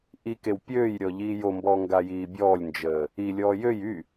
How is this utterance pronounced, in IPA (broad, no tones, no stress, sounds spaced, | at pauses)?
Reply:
ʔ i k e w pʲ øː j ɾʲ ɔ ʎ iː j o m b ɔː ŋ ɡ a j iː bʲ ɔː lʲ n d͡ʒ əː | i lʲ ɔː j ø j y